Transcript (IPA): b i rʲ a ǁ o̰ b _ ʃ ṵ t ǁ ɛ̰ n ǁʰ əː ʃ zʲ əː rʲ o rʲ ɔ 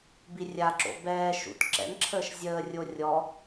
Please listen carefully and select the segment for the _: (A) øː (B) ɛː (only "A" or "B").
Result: B